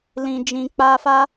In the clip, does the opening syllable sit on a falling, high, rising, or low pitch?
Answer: low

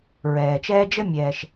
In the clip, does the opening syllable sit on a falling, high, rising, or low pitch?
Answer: low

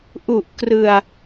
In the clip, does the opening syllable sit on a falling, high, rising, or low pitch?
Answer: low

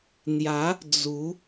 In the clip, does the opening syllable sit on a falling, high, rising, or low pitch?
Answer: rising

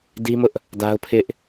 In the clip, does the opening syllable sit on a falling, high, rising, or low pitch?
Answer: high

